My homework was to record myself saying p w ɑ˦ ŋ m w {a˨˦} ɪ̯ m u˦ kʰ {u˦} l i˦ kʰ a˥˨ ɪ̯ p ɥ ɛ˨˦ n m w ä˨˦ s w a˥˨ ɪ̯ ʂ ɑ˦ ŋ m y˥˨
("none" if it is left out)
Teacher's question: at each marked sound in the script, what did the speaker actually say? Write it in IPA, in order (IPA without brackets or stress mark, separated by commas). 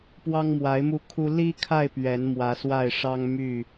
a˨˦, u˦